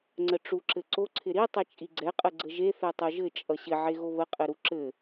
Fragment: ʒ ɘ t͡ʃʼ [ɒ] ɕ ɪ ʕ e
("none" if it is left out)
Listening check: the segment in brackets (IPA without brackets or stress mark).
ʌ